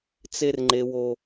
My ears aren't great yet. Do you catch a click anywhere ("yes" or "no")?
yes